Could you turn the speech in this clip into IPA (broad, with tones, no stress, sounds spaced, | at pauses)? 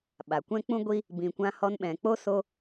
ɓ a˨ kʷ ɛ̃˦ k͡p ũ˦ ɡʷ i˦ | b ĩ˨ kʷ ã˧ h ɔ˧ n ɓ ɛ̃˨ k͡p o˦ s o˧